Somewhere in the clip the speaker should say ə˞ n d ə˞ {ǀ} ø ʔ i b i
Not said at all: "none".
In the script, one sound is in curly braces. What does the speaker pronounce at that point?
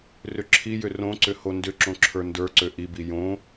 ǀ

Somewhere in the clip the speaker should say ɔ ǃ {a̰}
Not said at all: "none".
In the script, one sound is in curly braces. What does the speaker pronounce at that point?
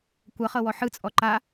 a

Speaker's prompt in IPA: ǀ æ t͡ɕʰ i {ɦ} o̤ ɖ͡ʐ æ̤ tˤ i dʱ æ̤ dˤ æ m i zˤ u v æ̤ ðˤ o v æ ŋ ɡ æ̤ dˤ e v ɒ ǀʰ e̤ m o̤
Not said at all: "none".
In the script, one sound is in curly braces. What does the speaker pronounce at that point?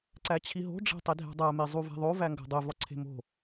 ɦ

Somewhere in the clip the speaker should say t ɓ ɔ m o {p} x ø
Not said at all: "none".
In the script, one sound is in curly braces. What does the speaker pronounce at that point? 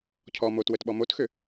t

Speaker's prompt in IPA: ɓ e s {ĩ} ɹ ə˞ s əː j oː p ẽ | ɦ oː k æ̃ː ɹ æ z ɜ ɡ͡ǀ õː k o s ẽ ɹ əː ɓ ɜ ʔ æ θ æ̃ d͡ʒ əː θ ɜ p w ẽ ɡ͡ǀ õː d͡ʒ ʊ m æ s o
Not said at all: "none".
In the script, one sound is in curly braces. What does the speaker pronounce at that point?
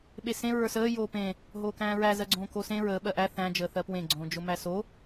ẽ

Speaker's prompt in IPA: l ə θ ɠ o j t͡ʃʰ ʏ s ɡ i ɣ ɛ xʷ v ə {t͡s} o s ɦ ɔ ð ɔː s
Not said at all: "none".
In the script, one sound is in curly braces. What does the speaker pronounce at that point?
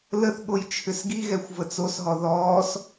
t͡s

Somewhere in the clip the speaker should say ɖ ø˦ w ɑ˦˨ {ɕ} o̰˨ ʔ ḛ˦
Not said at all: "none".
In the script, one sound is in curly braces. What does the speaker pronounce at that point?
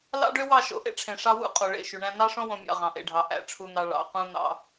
ʃ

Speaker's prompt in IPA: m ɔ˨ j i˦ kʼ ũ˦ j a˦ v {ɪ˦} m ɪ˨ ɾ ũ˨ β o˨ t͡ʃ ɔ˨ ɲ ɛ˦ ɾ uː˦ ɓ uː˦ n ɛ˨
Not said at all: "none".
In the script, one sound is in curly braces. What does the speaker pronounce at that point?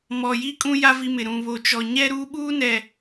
i˦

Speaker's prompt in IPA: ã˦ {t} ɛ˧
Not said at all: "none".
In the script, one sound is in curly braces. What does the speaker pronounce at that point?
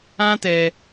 t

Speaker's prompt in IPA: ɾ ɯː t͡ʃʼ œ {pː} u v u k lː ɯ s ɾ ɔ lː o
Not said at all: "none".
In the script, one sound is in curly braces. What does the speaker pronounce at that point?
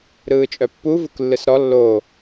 pː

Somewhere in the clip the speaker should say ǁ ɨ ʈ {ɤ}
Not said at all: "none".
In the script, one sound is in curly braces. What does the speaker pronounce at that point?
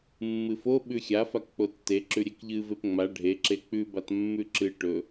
ɵ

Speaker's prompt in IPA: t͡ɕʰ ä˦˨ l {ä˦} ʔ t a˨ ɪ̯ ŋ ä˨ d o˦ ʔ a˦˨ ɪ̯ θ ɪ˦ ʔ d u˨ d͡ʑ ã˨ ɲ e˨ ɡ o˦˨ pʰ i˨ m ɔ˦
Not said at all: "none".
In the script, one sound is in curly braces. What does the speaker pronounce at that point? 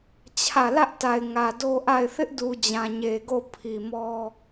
ä˦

